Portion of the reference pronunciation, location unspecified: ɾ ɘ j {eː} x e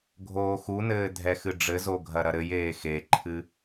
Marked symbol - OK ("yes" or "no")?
yes